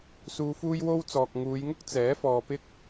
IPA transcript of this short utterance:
s uː˧ f uː˥ j w o˥ w t͡s ɔː˨ k̚ ŋ uː˨˧ j ŋ ʊ˥ k̚ t͡s ɛː˨˥ f ɔː˨ p ɪ˥ k̚

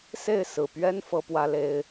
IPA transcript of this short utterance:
s e˥˨ ɪ̯ s ɹ̩˨˩ p ɥ ɛ˦ n f ɤ˦ p w ä˦ l e˦ ɪ̯

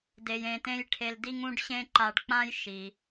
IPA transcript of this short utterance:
d e˧ j ẽ˧ t ẽ˥ j ʈʰ e˧ l d i˥ ŋ ũ˥ ɖ ɕ ẽ˥ ǃ a˧ ɖ k͡p ã˥ j ʃ i˩

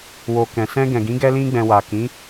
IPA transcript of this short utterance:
w o˨ k ɛ̃˨ s ɛ̃˧ ɡ ɛ̃˨ ɡ ĩ˨˦ ɡ ɛ˧ l ĩ˧ ɡ͡b ɛ̃˨ w a˨ k ĩ˨˦

